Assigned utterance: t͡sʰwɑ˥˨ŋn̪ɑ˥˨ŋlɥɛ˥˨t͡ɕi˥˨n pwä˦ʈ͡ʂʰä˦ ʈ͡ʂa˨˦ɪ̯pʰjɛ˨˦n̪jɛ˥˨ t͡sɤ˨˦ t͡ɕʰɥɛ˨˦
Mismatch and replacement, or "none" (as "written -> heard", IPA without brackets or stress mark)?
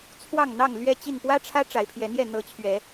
t͡s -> n̪